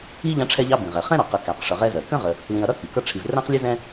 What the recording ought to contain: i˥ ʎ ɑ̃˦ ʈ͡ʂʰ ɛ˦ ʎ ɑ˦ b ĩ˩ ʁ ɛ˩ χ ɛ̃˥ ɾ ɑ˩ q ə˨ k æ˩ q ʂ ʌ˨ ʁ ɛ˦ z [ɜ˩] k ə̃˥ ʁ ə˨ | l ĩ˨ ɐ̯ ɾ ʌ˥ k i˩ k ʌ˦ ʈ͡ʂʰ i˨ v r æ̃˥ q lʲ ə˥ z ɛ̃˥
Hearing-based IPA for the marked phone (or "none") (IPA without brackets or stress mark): ɜ˩